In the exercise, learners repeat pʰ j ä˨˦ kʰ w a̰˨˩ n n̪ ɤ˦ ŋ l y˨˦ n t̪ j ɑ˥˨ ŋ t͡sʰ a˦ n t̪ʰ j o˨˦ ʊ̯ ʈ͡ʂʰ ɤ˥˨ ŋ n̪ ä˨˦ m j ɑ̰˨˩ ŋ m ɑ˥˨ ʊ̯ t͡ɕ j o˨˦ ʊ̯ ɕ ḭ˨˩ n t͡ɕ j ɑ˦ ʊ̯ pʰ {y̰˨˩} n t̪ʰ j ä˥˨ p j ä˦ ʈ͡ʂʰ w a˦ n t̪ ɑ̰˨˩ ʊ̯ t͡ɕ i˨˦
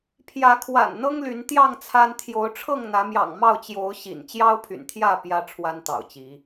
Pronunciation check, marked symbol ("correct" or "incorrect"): correct